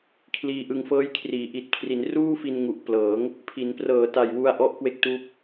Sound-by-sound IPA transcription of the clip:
kʰ l iː˧ ʔ ɯ˧ ŋ f ɤː˦˥ j kʰ r iː˩˦ ʔ i˨˩ t̚ kʰ r i˩˦ n r uː˥˩ f i˧ n ŋ u˨˩ ʔ p l ɤː˩˦ ŋ | pʰ i˩˦ n p r ɤː˨˩ t a˨˩ j w u˧ a̯ ʔ ɔ˦˥ ʔ k w e˦˥ k̚ t uː˦˥ p̚

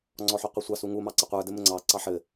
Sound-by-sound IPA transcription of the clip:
ŋ͡ǀ ɔ ħ u qʷ i sʷ ɑ s u ŋ u m ɑ ǀ ɪ qʷ ə˞ d ɘ m ɘ ŋ͡ǀ ɑ ǀ ɑ ħ ɘ

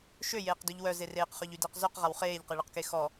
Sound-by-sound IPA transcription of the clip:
ʃ ø j eː q d ø ʎ w œ z e r eː q χ œ ʎ y d əː q z œ q ʁ a w χ eː ʎ q e ɭ ə q k e x ɔ

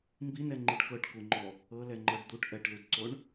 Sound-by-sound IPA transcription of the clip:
m b i n ɛ ŋ͡ǃ i ɖ k ɤ ʈ k u ŋ͡ǃ ɔ | ɤ l ɛ ŋ͡ǃ ɤ ɖ d̪ u ʈ ʔ ɛ ʈ l u d ǀ o ɳ

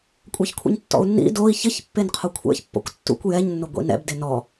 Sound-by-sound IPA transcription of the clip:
kʷʼ ɛ ç kʷʰ ḭ ɲ tː ɔ̰ u̯ nː ḭ d o i̯ ç ɪ ç pː e n qʰ o kʷʰ ɛ̰ ç pː ɔ̰ kʷ tː ṵ kʷ j ɛ ɲ nː ʊ ɡʷ ḭ n ɛ̰ b d e n ɔ

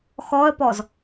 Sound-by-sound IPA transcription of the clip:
x ɔ ə̯ p ɔ z

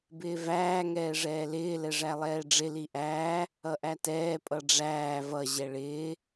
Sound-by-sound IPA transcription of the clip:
b ɪː v æː ŋ ɛː ʐ ɛː l ɪː l ɛ ʐ æ lˠ ɛː ɖ͡ʐ ɪ l i ʔ æː | ʌ ʔ æ t ɛː pʼ ʌ ɖ͡ʐ æː v ʌ ʑ ɛ ɭ ɪː

